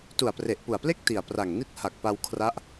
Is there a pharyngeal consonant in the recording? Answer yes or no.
no